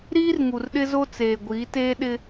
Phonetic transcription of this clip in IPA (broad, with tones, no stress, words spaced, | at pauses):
ɾiː˦rŋu˨rɗɪ˦zo˦ t͡seː˨ɡʷiː˨˦teː˦ ɗɪ˦